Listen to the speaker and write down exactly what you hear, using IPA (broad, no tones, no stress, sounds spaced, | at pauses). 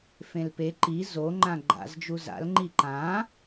f ẽ l p e ǃ i z o ŋ͡ǃ ã ɡ͡ǃ a̰ z d͡ʒ u z a̰ l ŋ͡ǃ i ǃ ã